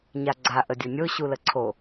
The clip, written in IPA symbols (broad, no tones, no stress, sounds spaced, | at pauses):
ɲ a ɡ͡ǀ a ʔ ə dʲ o nʲ o ɕ u l ə ǀʰ o